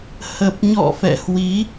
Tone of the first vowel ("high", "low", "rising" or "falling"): low